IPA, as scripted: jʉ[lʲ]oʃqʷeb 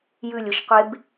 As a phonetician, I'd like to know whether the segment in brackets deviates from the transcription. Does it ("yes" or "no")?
no